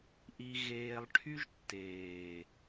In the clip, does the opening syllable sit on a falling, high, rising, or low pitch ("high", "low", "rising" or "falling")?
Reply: high